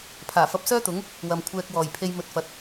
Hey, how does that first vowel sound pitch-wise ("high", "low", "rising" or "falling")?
low